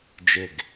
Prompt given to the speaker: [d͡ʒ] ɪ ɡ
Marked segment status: correct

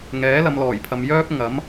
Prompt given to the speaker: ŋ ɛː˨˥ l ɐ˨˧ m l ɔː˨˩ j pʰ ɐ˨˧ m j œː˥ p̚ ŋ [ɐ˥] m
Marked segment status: incorrect: ɐ˨˥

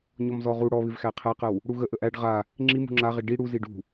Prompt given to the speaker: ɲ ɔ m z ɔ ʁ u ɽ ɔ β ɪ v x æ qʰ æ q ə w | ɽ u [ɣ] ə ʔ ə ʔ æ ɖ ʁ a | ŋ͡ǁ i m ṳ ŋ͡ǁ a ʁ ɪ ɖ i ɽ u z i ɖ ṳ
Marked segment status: correct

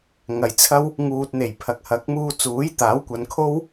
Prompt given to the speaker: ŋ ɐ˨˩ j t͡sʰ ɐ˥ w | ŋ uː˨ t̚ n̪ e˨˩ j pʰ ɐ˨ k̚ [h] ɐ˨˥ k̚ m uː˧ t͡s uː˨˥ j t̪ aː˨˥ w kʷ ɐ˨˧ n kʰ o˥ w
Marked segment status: correct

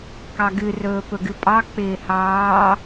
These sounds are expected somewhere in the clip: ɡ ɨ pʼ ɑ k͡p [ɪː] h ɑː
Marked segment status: correct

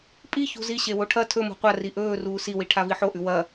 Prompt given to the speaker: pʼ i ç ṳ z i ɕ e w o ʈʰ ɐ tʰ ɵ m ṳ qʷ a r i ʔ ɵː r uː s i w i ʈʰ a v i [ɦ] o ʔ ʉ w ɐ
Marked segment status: incorrect: ħ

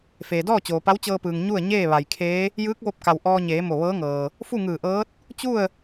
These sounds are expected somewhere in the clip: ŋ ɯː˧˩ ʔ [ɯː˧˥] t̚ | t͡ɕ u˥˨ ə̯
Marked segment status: incorrect: ɤː˧˥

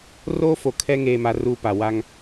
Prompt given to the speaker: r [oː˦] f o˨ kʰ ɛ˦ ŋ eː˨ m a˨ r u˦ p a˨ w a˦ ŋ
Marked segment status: correct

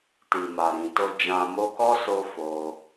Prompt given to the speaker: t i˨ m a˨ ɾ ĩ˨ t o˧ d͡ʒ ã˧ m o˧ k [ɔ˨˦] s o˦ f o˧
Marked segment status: incorrect: ɔ˦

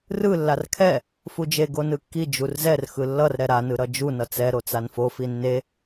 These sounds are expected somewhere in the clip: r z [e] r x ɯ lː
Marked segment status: incorrect: ɛ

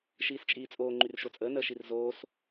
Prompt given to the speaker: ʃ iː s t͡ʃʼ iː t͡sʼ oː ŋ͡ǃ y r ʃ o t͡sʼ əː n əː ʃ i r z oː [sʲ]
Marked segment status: incorrect: s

